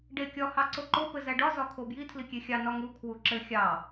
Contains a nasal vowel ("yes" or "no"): no